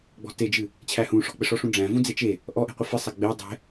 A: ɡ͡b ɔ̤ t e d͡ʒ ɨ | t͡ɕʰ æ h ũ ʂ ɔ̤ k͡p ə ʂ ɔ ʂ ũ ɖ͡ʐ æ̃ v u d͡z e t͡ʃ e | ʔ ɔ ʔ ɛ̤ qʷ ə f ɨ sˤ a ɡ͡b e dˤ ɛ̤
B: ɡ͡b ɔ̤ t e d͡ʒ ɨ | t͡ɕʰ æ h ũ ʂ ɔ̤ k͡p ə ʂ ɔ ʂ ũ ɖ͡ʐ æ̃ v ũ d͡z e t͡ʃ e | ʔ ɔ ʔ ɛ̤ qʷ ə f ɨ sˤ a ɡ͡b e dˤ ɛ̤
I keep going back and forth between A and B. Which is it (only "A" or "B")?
B